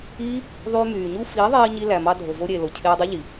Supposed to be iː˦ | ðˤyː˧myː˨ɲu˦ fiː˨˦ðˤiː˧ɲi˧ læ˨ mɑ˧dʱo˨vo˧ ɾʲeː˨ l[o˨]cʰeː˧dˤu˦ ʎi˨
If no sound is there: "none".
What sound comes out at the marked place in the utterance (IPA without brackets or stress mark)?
o˨